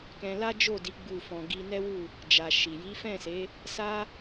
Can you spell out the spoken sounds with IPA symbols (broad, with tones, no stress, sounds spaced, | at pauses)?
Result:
k ɛ̃˧ l a˦ d͡ʒ o˦˨ d i˨˦ ɡ͡b u˦˨ f ɔ̃˧ ɡ i˧ n ɛ˦ w u˦˨ | d͡ʒ a˨ ʃ i˨ j i˨˦ f ɛ̃˦˨ s e˨˦ | s a˦